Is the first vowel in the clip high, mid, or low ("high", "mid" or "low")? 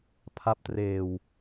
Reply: low